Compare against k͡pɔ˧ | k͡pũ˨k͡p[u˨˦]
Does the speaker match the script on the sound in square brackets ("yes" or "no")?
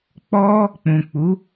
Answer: yes